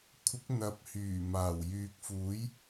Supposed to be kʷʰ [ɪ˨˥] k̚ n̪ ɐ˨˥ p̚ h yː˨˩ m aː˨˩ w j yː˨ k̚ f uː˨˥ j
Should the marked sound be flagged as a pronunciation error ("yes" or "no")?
no